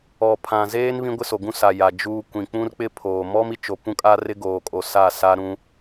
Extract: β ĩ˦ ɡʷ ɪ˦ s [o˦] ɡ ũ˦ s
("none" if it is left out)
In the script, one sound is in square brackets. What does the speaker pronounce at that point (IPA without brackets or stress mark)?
o˨